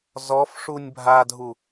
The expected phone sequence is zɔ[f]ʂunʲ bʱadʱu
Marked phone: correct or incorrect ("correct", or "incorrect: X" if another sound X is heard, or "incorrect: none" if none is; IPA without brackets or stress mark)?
correct